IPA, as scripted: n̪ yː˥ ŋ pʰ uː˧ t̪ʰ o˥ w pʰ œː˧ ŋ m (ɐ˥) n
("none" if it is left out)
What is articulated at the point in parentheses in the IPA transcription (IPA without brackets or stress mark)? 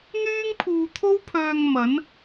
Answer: ɐ˨˥